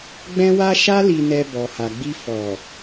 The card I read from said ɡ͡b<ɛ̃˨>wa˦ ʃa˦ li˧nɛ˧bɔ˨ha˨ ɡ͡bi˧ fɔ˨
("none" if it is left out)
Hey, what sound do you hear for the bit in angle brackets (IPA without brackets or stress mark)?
ɛ̃˦